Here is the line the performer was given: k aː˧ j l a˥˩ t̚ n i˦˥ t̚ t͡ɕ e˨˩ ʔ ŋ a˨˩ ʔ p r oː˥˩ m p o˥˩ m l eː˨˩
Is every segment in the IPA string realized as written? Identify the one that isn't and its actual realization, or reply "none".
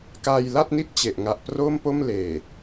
none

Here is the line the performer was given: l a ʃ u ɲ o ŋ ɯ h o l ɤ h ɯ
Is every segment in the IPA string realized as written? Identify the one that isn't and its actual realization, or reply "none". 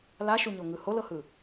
none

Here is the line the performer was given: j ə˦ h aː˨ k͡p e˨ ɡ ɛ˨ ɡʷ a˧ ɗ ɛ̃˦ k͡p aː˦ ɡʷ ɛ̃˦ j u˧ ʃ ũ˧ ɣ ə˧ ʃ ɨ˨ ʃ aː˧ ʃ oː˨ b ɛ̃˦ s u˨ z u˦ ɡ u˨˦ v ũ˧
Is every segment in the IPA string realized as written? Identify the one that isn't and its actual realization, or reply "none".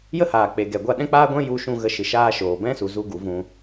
none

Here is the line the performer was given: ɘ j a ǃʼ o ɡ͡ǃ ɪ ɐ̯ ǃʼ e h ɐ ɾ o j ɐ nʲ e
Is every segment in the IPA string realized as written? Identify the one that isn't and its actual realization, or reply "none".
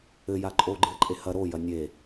ɪ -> ɨ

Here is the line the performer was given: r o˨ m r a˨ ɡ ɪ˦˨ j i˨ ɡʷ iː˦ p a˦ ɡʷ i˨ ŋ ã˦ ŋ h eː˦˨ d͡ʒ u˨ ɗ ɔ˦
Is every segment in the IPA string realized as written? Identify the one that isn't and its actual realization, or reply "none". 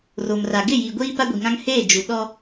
none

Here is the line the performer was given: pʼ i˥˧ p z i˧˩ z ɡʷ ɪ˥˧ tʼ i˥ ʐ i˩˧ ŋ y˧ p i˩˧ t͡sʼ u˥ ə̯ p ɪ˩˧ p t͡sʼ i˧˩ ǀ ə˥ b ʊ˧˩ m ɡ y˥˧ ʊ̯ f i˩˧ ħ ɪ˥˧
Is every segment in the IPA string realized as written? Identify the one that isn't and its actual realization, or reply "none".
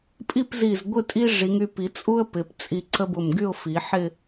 none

